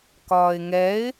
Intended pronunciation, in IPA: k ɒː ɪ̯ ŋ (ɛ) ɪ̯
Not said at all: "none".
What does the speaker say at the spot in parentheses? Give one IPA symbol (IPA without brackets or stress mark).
ɛ